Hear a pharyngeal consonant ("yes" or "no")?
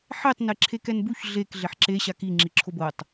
yes